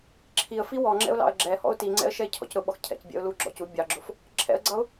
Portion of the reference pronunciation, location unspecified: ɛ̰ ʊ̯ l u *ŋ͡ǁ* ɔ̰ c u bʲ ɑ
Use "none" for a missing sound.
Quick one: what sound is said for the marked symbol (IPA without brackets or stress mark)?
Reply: ɡ͡ǁ